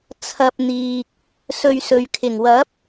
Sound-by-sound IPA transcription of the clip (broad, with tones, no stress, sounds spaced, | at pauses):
t͡sʰ ɐ˧ p̚ n̪ iː˨ k̚ | s ɵ˧ ɥ s ɵ˨ ɥ kʰ ɪ˨˩ ŋ w ɐ˨˥ p̚